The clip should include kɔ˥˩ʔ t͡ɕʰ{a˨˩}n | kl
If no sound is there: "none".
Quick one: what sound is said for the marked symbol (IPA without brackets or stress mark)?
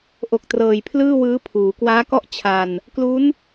a˧